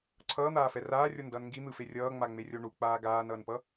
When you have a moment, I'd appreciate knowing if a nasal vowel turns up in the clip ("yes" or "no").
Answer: no